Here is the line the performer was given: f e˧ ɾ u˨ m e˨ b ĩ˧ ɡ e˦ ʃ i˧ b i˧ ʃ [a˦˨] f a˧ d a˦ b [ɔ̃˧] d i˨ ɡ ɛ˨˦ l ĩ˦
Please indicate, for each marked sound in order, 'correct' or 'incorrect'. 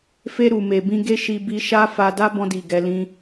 incorrect: a˦, correct

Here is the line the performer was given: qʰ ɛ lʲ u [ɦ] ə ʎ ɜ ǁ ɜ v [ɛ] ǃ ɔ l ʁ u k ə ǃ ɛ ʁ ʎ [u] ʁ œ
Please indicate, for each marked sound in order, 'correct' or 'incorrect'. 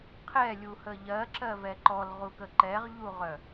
incorrect: h, correct, correct

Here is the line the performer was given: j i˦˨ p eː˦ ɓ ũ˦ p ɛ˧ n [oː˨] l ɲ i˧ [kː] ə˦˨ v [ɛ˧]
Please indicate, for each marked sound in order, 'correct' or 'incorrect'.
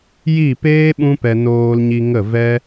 incorrect: oː˧, incorrect: ŋ, incorrect: ɛ˦

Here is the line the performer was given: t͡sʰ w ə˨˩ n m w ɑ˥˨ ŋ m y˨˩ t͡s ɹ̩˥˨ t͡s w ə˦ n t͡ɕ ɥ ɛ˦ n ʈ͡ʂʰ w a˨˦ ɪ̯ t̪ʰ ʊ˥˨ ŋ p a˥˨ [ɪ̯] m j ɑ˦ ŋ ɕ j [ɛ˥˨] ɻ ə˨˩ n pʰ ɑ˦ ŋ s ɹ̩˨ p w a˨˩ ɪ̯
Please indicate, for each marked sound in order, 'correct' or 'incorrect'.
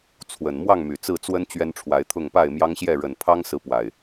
correct, correct

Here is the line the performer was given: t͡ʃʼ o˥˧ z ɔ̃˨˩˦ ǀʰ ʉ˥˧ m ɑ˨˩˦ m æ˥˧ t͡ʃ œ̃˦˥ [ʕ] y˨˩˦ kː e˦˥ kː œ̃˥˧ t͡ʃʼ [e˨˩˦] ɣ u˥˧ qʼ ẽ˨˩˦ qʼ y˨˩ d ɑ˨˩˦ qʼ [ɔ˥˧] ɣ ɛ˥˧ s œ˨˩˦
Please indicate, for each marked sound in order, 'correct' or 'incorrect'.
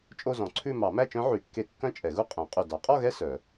correct, incorrect: ɛ˨˩˦, correct

